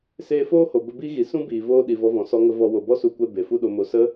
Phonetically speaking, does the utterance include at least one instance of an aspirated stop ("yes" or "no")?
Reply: no